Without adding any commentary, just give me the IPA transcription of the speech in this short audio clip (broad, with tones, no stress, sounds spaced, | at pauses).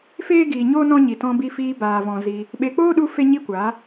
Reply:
f eː˦ ɡ iː˨ ɲ oː˦ n ɔ̃˦ ɲ i˨ t ɔ̃˧ b i˧ f iː˧ b aː˨ v ɔ̃˨ z i˧ | ɓ e˨ k͡p oː˦ ɗ u˧ f e˦ ɲ i˦ kʷ aː˨˦